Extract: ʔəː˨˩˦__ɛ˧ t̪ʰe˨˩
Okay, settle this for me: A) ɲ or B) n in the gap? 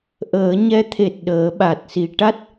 A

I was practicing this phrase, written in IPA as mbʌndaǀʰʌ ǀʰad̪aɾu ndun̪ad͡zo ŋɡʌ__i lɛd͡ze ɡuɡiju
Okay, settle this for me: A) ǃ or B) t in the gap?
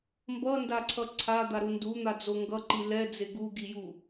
A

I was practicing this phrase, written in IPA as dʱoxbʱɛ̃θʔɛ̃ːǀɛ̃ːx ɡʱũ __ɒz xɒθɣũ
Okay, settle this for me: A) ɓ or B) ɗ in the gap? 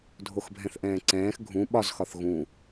A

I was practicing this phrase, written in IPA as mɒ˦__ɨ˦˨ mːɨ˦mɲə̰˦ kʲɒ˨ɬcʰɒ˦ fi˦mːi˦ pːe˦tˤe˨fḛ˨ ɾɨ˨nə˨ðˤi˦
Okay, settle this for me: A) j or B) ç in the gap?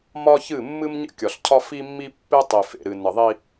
B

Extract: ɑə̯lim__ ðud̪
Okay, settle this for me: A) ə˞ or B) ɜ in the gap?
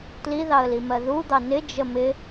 B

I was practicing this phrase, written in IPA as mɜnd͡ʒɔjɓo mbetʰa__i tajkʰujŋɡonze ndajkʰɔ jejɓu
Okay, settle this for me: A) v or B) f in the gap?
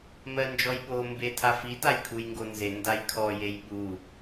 B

